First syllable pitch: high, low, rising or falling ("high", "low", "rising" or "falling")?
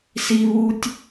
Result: low